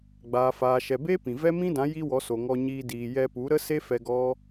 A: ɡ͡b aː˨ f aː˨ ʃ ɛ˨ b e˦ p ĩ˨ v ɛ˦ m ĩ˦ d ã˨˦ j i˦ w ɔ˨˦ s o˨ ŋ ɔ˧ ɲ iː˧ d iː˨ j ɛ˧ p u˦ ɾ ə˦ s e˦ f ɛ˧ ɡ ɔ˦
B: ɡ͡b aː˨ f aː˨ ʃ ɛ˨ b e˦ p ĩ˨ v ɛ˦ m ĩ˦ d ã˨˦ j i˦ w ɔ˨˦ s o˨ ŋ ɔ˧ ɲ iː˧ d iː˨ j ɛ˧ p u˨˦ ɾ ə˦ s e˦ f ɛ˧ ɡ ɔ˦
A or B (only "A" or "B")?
B